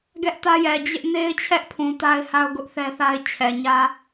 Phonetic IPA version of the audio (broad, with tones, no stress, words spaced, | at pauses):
ɡɛ˦ʔtä˦jɛ˨ d͡ʑɪ˦ʔ ne˦ɪ̯t͡ɕʰɛ˦ʔpʰũ˨ ta˦ɪ̯ha˦ʊ̯ ɡʊ˦ʔθɛ˦θa˦ɪ̯ t͡ɕʰɛ˨ɲä˦